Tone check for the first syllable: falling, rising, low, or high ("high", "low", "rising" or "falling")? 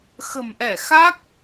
low